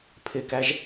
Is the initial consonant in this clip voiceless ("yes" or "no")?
yes